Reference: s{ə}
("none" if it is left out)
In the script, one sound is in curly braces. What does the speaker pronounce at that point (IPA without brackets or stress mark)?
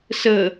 ə